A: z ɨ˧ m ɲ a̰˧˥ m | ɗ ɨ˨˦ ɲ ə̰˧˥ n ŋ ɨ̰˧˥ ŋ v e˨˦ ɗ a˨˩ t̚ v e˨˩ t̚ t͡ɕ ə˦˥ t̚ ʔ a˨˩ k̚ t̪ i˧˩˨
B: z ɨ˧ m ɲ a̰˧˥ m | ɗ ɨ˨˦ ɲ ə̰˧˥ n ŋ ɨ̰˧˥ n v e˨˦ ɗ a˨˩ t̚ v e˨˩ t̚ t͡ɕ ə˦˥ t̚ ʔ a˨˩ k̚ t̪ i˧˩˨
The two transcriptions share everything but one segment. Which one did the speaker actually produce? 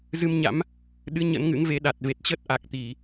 A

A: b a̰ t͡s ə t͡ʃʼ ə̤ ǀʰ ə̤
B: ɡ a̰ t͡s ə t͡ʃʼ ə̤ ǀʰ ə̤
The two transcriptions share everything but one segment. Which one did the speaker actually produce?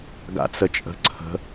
B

